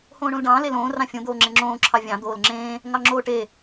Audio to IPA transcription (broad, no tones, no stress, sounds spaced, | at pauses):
h õː ɳ õ l ɖ ɑ̃ː l e l õː r ɑ̃ fʲ õ d̪ oː ŋ͡ǁ ẽ ŋ͡ǁ õː ǁʰ ɑ vʲ ɑ̃ d̪ oː l ŋ͡ǁ ẽː | ŋ ɑ ŋ͡ǁ oː ʈ e